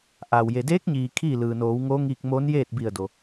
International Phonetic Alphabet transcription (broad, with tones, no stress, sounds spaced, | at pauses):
ʔ aː˩ w j e˩ d eː˧˥ k̚ ɲ iː˩ kʰ iː˥˨ l ɯː˩ n oː˩˧ w ŋ oː˧˥ ŋ iː˧ k̚ m oː˧˥ n j eː˥˨ t̚ b i˧˩ ə̯ d o˩